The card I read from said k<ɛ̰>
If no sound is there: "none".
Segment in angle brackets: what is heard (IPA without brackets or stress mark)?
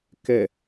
ɛ